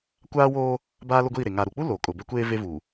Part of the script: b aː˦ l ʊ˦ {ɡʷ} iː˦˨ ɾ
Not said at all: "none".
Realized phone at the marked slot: ɡʷ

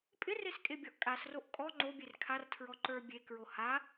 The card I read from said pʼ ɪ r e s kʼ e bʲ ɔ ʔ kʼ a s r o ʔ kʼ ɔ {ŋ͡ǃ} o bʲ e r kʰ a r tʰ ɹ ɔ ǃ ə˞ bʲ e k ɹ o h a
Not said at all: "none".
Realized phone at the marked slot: ŋ͡ǃ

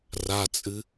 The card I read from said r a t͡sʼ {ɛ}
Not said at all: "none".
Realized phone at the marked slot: ɨ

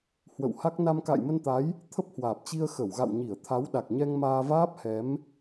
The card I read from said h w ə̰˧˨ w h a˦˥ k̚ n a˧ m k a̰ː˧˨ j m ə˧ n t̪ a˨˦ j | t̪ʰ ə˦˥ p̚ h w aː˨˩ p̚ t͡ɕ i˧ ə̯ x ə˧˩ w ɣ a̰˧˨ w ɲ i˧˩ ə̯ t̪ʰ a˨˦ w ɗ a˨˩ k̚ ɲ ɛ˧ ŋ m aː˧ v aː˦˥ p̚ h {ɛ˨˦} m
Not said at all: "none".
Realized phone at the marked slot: ɛ˨˦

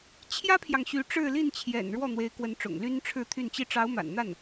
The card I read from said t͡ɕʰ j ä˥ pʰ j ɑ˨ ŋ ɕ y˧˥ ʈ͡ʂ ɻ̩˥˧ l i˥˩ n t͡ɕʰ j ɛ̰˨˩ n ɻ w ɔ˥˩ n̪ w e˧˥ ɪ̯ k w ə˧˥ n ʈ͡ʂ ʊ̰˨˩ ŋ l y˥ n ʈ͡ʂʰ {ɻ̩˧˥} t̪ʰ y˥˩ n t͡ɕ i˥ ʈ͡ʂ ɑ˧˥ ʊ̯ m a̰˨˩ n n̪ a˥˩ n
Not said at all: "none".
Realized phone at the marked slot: ɻ̩˥˧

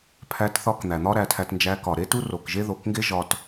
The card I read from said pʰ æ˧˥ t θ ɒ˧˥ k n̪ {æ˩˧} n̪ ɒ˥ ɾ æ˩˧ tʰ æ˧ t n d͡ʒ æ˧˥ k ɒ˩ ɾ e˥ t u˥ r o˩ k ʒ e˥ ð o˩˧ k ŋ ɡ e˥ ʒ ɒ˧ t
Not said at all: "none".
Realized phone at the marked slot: æ˩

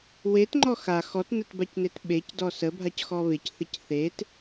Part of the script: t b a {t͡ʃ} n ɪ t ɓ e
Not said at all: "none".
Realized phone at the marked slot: c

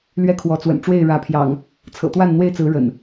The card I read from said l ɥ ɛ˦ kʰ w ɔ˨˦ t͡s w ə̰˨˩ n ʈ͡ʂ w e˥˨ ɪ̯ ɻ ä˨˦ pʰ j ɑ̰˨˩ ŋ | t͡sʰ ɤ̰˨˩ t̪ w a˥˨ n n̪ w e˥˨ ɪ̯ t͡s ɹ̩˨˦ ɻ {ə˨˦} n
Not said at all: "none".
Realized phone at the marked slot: ə̰˨˩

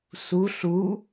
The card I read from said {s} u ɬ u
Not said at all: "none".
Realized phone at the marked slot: s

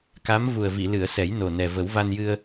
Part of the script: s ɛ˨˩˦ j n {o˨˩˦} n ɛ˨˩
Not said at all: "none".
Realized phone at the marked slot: o˨˩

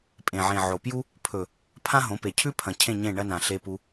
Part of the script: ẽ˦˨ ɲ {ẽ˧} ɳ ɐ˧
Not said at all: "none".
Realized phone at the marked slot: ẽ˦˨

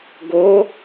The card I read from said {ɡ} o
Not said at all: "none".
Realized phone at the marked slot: ɡ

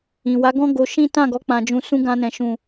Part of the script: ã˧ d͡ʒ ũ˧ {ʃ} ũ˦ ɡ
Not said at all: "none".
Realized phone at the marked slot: s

